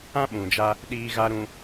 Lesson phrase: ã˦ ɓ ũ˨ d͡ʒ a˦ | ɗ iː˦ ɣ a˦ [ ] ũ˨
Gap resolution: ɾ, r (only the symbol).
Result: ɾ